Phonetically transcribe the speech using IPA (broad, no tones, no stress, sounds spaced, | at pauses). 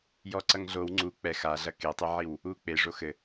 j ɔ ǀ ɐ ŋ ɮ o w ŋ͡ǀ u k͡p ɛ x a ɮ ɐ k e tˤ ɨ ʕ i w | u k͡p e ʐ o x ɘ